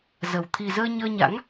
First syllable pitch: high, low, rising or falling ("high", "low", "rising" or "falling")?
low